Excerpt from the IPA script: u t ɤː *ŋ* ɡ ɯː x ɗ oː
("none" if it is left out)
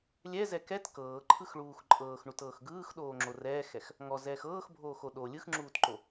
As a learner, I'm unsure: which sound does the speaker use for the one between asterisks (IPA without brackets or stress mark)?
x